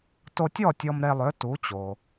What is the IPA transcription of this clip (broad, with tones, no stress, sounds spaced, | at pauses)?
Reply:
t o˧ tʲ ɔ˥˩ tʲ ɔ˧ m ɾ e˧ lˠ ø˩˥ t u˩˥ t͡ɕ o˩